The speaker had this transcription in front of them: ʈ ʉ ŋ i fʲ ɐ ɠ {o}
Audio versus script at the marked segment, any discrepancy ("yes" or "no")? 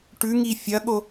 no